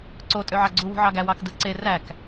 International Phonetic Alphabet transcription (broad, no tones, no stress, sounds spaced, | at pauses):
ǀ o tʼ ø ʕ ɑ ɡ͡ǀ u w ṳ ʕ ɑ ɡ æ w ɑ k d ɯ ǀ e r æ k